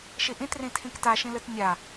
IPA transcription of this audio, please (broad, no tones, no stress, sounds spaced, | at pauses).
ʃ i ʔ ĩ t r ĩ tʰ ĩ k t a ʃ ĩ l ɯ t nʲ a